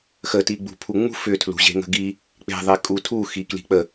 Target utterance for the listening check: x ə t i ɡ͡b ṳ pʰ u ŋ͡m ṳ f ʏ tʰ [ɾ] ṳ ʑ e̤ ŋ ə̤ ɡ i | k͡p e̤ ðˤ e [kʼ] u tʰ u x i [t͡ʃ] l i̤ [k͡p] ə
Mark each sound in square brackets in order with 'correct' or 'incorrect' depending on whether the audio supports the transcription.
incorrect, correct, incorrect, correct

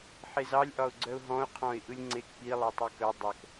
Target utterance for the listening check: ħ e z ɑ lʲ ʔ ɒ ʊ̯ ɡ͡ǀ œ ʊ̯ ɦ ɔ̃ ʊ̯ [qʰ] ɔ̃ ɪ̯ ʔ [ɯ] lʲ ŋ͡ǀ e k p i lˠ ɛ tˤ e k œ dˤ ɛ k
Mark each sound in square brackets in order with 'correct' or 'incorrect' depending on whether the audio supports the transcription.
correct, correct

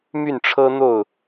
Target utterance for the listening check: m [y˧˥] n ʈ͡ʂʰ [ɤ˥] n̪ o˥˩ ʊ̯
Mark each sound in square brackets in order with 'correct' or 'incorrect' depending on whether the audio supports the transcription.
incorrect, correct

